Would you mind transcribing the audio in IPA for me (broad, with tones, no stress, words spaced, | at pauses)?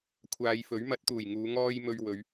kʷʰaː˨˧jfɵ˨˥ɥ mɐ˨˥t̚t̪uː˨˩jŋuː˨˧ ŋɔː˧j mɵ˧ɥwɵ˨˧ɥ